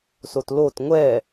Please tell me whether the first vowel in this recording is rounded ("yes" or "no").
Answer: yes